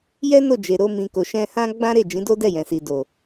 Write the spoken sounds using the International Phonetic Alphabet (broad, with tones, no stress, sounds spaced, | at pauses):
j ɛ˦ n o˦˨ d͡ʒ e˨ ɾ o˧ m ĩ˨ k o˨ ʃ ɛ̃˧ h ã˦ ɡ͡b ã˦ ɾ e˦˨ d͡ʒ ĩ˨˦ d o˦ d ɛ˦˨ j ɛ̃˨ s i˨ d o˨